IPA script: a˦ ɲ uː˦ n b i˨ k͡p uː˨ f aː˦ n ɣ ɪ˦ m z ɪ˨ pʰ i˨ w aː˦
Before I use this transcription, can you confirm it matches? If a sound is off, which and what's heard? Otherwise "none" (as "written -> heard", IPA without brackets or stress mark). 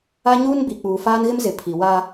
none